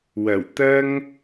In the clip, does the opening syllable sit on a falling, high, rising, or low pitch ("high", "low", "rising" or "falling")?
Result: low